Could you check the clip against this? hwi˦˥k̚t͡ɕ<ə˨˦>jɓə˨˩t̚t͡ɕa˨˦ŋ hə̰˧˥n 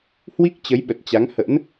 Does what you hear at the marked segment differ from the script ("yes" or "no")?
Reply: no